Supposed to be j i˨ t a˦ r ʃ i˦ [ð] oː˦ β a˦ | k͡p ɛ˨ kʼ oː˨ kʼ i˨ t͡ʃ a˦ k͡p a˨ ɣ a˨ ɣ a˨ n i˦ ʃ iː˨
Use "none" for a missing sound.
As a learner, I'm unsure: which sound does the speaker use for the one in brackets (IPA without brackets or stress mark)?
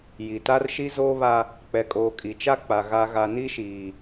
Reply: z